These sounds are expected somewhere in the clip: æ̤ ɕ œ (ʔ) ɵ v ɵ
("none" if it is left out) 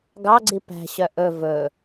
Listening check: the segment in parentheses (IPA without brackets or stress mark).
ʔ